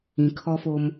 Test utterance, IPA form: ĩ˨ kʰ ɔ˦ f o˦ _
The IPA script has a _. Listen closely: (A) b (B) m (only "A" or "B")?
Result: B